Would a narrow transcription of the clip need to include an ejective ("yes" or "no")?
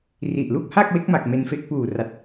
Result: no